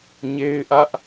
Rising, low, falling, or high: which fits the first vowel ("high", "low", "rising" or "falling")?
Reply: high